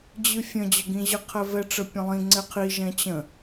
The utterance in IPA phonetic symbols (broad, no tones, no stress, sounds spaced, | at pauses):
d͡ʑ ɨ fʲ ə̃ d͡ʑ ə ɡ ĩ ʑ ə qʰ ɛ v ɛ ʈ͡ʂ ə pʲ ə̃ lˠ ĩ ŋ͡ǀ ɛ qʰ i ʒ ɛ̃ t͡ɕ ə̃